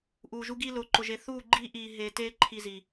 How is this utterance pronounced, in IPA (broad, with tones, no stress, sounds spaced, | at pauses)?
ʔ uː˨ ʒ u˦ ɡ iː˦ l ʊː˨ ǃ ʊ˨ ʒ e˨ θ uː˦˨ ɡ͡ǃ iː˦ ʔ iː˨ ɦ eː˨ t eː˦ ǃʰ i˦ z iː˨